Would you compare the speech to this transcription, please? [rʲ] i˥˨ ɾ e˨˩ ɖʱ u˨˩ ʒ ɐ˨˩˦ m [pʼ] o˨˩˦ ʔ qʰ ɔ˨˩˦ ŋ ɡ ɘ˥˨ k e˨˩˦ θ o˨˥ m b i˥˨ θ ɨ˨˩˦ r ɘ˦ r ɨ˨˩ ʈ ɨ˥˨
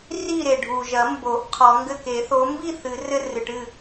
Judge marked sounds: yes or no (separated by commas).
no, no